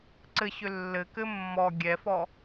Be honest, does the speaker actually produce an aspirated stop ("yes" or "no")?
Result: no